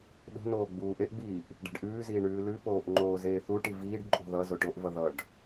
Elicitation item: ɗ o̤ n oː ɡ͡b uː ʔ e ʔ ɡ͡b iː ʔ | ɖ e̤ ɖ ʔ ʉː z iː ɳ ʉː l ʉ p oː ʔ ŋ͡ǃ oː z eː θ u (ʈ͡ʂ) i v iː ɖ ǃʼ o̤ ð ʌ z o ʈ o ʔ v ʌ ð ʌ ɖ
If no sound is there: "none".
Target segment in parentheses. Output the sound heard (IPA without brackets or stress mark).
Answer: ʈ